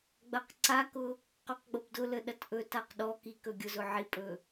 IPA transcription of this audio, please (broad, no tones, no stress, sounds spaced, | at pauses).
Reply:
ɡ͡b ɐ q ǀ a k ʊ | q ɔ q ɡ͡b o b d ʊ l ə ɗ ɐ t ʔ ɵ t a q ɗ ɔ k i k ɵ ɡʲ ʊ z ʊ ʕ i pʼ ɵ